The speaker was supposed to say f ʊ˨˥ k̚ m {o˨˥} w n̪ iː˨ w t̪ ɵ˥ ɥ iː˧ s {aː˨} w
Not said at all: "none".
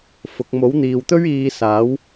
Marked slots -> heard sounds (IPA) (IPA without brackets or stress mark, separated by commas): o˨˥, aː˨˥